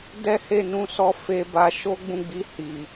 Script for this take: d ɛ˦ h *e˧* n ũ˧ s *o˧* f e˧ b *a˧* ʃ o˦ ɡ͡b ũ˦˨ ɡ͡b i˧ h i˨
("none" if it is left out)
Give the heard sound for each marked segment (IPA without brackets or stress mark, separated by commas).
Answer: e˦˨, ɔ˧, a˧